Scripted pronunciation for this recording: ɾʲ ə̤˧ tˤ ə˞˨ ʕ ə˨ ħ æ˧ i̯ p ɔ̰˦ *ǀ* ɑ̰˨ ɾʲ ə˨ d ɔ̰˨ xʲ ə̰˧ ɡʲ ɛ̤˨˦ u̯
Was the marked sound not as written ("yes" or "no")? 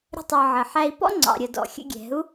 yes